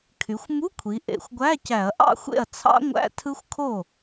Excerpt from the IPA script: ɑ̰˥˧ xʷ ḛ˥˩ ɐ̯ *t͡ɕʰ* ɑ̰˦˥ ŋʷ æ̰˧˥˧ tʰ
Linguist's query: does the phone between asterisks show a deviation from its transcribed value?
yes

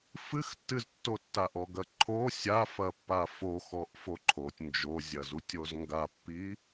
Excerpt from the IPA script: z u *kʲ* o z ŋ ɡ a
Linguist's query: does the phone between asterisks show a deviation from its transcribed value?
yes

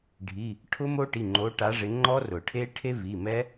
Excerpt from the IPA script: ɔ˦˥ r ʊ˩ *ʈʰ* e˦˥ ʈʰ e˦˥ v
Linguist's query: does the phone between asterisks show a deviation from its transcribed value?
no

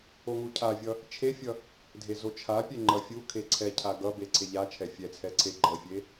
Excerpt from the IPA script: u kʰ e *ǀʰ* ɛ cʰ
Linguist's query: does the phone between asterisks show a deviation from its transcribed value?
no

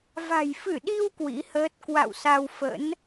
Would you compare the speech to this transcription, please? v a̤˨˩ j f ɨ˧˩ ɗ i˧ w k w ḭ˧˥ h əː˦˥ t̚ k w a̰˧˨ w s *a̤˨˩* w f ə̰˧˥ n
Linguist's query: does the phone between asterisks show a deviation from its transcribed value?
yes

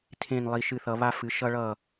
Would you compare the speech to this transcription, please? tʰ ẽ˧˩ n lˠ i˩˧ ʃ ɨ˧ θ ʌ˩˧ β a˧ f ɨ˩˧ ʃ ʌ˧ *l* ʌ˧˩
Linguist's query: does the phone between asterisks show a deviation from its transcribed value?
yes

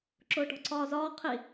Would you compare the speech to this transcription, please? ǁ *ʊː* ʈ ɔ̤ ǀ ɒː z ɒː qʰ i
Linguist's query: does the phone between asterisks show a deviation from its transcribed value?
no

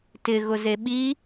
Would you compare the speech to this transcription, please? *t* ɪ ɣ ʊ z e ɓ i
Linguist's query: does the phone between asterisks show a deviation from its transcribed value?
no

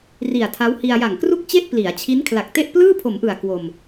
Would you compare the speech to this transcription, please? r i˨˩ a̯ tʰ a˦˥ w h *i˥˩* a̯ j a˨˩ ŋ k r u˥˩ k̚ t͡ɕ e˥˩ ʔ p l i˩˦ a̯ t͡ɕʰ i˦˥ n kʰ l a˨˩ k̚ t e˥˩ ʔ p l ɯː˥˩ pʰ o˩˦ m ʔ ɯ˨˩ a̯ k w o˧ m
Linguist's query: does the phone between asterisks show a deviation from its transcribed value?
yes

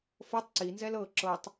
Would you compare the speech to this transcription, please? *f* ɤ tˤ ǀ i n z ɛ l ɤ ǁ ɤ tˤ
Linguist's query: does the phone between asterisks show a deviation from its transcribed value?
no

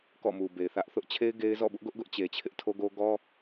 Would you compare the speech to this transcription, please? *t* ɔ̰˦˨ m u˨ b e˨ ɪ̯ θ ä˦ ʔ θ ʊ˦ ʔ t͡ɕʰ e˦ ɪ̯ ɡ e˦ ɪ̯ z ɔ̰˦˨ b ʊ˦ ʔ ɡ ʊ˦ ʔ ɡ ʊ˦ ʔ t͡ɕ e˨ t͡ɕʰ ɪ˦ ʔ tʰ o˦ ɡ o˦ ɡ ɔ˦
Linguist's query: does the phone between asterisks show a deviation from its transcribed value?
yes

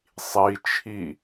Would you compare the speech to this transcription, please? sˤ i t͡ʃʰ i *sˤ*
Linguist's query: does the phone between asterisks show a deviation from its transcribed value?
yes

